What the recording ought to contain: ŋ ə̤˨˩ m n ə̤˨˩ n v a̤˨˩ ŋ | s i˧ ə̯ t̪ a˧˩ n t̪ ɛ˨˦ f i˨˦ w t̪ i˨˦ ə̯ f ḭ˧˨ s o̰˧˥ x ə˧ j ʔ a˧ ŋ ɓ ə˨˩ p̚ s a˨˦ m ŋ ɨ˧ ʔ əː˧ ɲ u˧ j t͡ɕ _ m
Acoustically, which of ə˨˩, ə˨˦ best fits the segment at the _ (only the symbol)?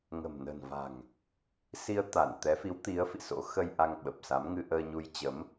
ə˨˦